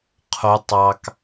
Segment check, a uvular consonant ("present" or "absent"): present